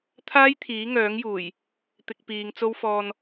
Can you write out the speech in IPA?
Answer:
t̪ʰ aː˥ j t̪ʰ iː˨˥ ŋ œː˨˥ ŋ j uː˨˩ j | t̪ ɪ˧ k̚ p iː˨˧ ŋ t͡s o˥ w f ɔː˧ n

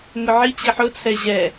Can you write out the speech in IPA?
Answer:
ŋ ʊ ʕ i t͡ɕ i ħ ʊ t͡sʰ ɛ ʑ ɛ

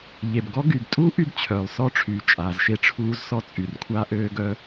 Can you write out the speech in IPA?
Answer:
ʎ e˩ b ɡ ɔ˥ ɡ y˩ b tʼ u˥ ʔ y˥ b t͡ɕʰ œː˩ lˠ s ɔ˥ ʈ͡ʂʰ yː˩ t͡ʃʼ aː˩ z ʃ e˥ ʈ͡ʂʰ uː˥ z s ɔ˥ t͡sʼ y˩ r kʷʰ a˥ ʔ øː˥ ɡ œ˥

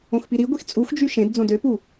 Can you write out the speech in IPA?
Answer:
õ x p i ɾ i ɡʷ i x t͡sʼ u x d͡ʒ y ʃ ẽ d d͡z õ d ø p u

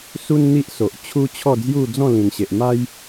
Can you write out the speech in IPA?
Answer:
s u˦ n n̪ i˦ ʔ s o˨ ʔ t͡ɕʰ u˦ t͡ɕʰ ɔ˥˧ d͡z j u˥˧ d͡z ɔ̃˥˧ l ĩ˨˩ n ɕ e˨ ʔ m a˦ j

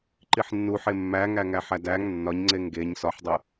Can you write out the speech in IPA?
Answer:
ǃ i ħ nː u ħ e mː æ ŋ æ ŋ æ ħ æ d æ ŋ nː ɒ ɲ ŋ͡ǀ e ŋ ɡ e ɲ s ɒ ħ dˤ o

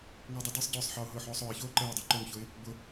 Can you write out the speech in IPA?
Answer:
ŋ ʊː dˤ o d əː sˤ ɟ ʊː sˤ ħ əː ʊ̯ ɦ ʊː ħ oː sˤ ʊː ɪ̯ ç oː ǃ əː ʊ̯ dˤ o ǃ o ŋ ç ʊ ɪ̯ | b ʊ

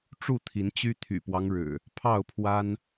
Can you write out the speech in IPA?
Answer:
ʈ͡ʂ u˥˨ t̪ʰ i˨˦ n t͡ɕ y˦ t̪ʰ y̰˨˩ p w ɑ˦ ŋ ɻ ɻ̩˨˩ | pʰ ɑ˥˨ ʊ̯ pʰ w a˦ n

